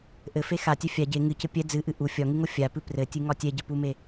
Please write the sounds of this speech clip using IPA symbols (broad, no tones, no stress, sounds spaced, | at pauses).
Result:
ʔ ɘ f e x a tʲ ɛ fʲ a ɟ e ŋ ɨ c ɘ pʲ ɛ d͡z ɨ ʔ ɨ ʔ u fʲ ɒ ŋ ɨ ŋ o fʲ a p ɨ p r ɘ tʲ ɨ ŋ ɒ tʲ ɛ ɟ ɘ p u m e